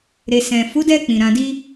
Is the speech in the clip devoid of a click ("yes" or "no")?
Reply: yes